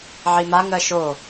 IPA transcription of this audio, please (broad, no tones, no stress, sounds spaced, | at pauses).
ʕ i m a ŋ ɜ ʃ o